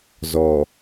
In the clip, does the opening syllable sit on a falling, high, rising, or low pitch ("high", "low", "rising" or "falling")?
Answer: low